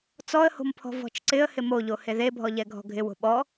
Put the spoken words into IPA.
t͡sɔə̯ho̤mpʰɔ̤ vɔ̤t͡ʃǀɪə̯ hɪmoʎo heðebʱɔ ʎɛɡʱɔ̤ɡʱɪ wo̤ɓɔ

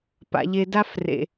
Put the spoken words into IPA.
pa̰˦ʎe˦ da˦frḛ˧

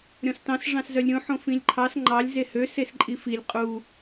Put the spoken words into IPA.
ɾʲɔ̃stɑ̃s ʐɑ̃szœlʲɾʲõ ħõfĩlʲǃʰɑs ŋ͡ǃɑlʲ zehø sesǃʼifilʲ qʼu

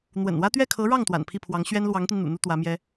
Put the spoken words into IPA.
n̪wə̰˨˩nwä˥ t̪ɥɛ˥˩kʰɤ˧˥ɻɑ˥˩ŋ t̪wa̰˨˩npʰi˥˩pʰwɑ˧˥ŋ ɕɥɛ˥nlwɑ˧˥ŋt̪i˧n n̪ṵ˨˩ n̪u˥t̪wä˧˥mjɛ˥

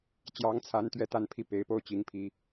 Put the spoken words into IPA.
t͡ɕjɑ˧˥ŋt͡sʰa˧˥nt̪ɥɛ˧˥ t̪a˥˧npʰi˥˩ pe˧˥ɪ̯po˥˩ʊ̯ t͡ɕi˧˥ŋpʰi˧˥

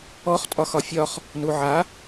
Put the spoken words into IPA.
ɔχ tʼɒxɒfʲɒχ | nuʕa

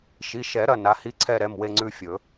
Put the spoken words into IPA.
ʃi˩˧˩ʃɛ˨˩˦ ɾɐ˩˧˩ na˩˧˩hi˧˥ǀʰɛ˦˨ɾɛ˩˧˩m we˦˨ŋ͡ǀʉ˦˨fʲɵ˨˩˦

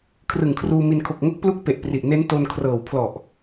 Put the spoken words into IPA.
kʰrɯ˨˩ŋkʰruː˧mi˧n kʰo˨˩k̚ŋo˦˥k̚ plu˦˥k̚pe˨˩ʔpri˨˩ʔ ne˦˥nto˧nkʰrɤː˨˩w pʰlɔ˨˩ʔ

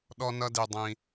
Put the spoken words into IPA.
ɗɔ˧nʌ˧di˩ dˤĩ˩

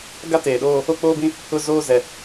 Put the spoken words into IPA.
ɡa˦ teː˨ɗoː˦ | o˦k͡poː˦bĩ˦ | ʊ˦zoː˦ zɛ˨

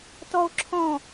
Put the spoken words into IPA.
tɔo̯ǁʰɔ̃

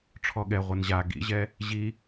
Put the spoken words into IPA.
ʈ͡ʂʰɔɠɛ ʁʷenʑa ɡḭʑɛ | ʑi

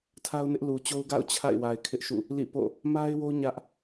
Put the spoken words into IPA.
tʰa˦ʊ̯nɪ˦ʔlu˨t͡ɕo˦ʊ̯ ɡa̰˦˨ʊ̯ t͡ɕʰa̰˦˨ɪ̯wa˨ɪ̯ kʰɪ˦ʔʃṵ˦˨ | lḭ˦˨ po̰˦˨ | ma˦ɪ̯wo˦ ɲä˦ʔ

